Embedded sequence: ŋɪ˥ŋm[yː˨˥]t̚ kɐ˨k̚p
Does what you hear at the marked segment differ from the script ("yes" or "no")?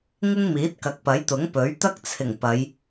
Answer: yes